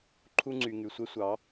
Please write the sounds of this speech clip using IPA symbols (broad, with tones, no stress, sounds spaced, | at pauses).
ǃʰ u˦ ŋ͡ǀ y˨ ŋ y˨ sʷ ɛ˦ sʷ ɑ˨˦